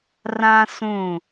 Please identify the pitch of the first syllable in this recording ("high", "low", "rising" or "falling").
high